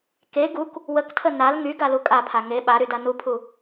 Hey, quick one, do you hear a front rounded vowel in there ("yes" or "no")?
yes